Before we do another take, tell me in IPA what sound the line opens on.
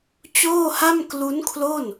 t͡ɕ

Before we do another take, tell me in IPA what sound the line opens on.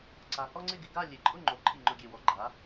ǀ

